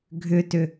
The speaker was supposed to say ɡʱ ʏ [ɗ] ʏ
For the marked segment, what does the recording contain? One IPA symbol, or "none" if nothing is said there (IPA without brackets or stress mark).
t